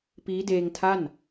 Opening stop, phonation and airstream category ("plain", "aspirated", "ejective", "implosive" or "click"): plain